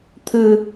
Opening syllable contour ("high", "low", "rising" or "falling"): low